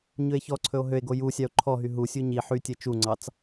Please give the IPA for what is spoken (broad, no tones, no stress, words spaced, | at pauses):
ɲɵe̯çɔǀʰɵo̯ ɦøe̯ɡo jusʲɑo̯ ǃʰɔɦy ɦusʲu ɲi ħytʲɛ t͡ʃuŋ͡ǀɑt͡s